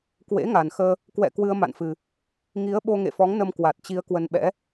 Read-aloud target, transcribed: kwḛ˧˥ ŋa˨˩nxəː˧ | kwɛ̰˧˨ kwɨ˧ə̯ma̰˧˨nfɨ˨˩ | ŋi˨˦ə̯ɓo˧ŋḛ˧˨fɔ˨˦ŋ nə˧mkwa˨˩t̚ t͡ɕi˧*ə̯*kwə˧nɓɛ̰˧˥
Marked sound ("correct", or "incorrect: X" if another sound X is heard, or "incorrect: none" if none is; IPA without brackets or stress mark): correct